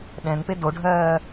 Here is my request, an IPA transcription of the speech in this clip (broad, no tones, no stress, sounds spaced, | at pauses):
ɗ ɛ̃ n p e d o ɖʱ ɜː